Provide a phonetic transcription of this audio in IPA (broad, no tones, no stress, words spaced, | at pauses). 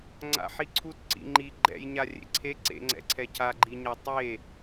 ŋ͡ǀa̰ħiǀʰut ǀḭŋ͡ǃi ɡ͡ǃɛ̰jɲa rʲḛǀʰe ǀḛŋ͡ǀɛ̰ǀʰɛ cʰaɡ͡ǃiɲa tˤe